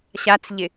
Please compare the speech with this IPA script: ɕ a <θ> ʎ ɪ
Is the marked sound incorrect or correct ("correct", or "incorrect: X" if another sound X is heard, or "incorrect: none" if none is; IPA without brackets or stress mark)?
incorrect: t͡s